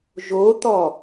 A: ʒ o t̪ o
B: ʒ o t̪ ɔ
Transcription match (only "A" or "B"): B